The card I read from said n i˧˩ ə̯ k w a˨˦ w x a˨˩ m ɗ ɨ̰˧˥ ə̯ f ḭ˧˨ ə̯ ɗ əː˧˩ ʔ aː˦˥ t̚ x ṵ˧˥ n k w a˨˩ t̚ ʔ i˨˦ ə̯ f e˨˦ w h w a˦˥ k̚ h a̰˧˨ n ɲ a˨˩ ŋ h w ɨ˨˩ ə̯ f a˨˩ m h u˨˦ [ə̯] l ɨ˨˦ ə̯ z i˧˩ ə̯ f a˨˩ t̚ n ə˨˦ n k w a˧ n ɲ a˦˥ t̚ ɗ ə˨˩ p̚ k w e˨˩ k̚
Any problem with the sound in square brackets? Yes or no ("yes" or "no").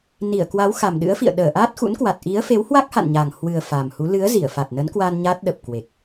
yes